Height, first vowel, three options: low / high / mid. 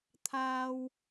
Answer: low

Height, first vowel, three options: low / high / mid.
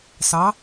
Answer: low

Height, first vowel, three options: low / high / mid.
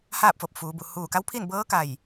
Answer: low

